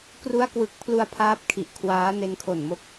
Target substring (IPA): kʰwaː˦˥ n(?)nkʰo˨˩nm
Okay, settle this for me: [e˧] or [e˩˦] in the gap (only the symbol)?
e˧